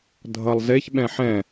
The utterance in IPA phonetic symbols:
dʱ ʌ lˠ z e ç ɓ ɛ̃ ħ ɛ̃

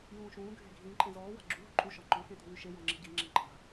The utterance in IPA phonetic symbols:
j ũː ʃ ũː ɡʱ e̤ ɡʱ ĩ ǃʼ ẽ z ɔː w a̤ ɡ͡ǁ u ɦ ʊ ǃʼ u ʃ ɔ ŋ͡ǃ ɔ̃ x ẽ t ṳ w y ʃ e j ɔ̃ ŋ͡ǁ i̤ ɟ i ŋ͡ǁ ẽ ǃʼ a̤

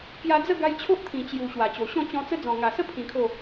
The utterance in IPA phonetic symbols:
k j a˧ d͡z ə˥˧ ɡ a˧ j t͡ɕʰ o˦ ʔ t̪ʰ ĩ˨˩ t͡ɕ j u˨˩ ɕ w a˨˩ t͡ɕ o˨˩ ɕ ɔ̃˥˧ t͡ɕ ɔ̃˧ t͡s ə˦ d͡z ɔ̃˨˩ ŋ a˨˩ s ə˦ pʰ ĩ˧ kʰ o˥˧

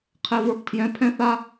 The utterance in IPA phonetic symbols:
qʰ ɛ˨ v ə˞˨ p tʰ j ɛ̃˨˦ pʰ ɛ̃˦ θ a˦

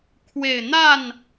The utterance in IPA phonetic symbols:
kʰ w e˨˩ ɪ̯ n̪ a˥˨ n

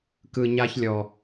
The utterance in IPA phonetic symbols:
k ɯ˨ ɲ a˧ ç lʲ ɔ˨

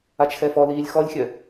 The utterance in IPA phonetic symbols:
a t͡ʃ x ɛ f ɔ l iː lʲ x ɔ lʲ xʲ œ

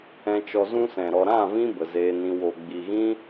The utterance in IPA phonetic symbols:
ɛ̃˧ t͡ʃ ɔ˧ z ũ˦ s ɛ̃˨ ɾ ɔ˨ ɾ ã˦˨ v ĩ˧ b ə˨ z eː˧ n ĩ˧ w o˨ ɡ͡b i˨ ɣ ĩ˦

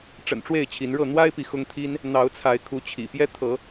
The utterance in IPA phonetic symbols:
ʈ͡ʂ ə̰˨˩ n ʈ͡ʂ w e˥˨ ɪ̯ t͡ɕʰ i˨˦ n ɻ ɤ˥˨ n̪ w a˦ ɪ̯ p i˨ x ʊ˦ ŋ t̪ʰ i˦ n | n̪ ɑ˨˦ ʊ̯ t͡sʰ a˨˦ ɪ̯ kʰ u˨˦ t͡ɕʰ ḭ˨˩ p j ɛ˦ t̪ʰ ɤ˨˦

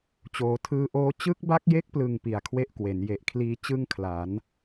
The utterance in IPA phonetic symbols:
t͡ɕ oː˩˦ tʰ ɯː˧ ʔ oː˦˥ t͡ɕ ɯ˦˥ k̚ b a˦˥ k̚ j e˦˥ k̚ p l ɯ˨˩ ŋ p i˨˩ a̯ kʰ w e˥˩ ʔ k w e˩˦ n j e˨˩ ʔ kʰ l iː˧ t͡ɕ ɯ˥˩ ŋ kʰ l a˩˦ n

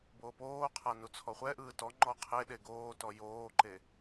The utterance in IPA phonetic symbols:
b oː p oː qʰ a n u t͡sʰ ɔ χʷ ɛ ʔ ɯː t ɔ ŋ͡ǃ ɔ qʰ e ɗ e ɡ oː t ɔ j oː ǃ e

